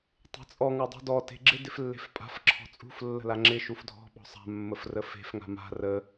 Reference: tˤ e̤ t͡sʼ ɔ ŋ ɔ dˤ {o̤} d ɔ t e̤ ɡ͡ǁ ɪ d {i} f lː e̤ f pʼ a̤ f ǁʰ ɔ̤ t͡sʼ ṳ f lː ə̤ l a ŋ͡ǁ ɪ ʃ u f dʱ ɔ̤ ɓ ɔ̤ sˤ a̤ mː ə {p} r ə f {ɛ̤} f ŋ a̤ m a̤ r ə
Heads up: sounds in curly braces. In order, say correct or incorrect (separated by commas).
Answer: incorrect, incorrect, incorrect, incorrect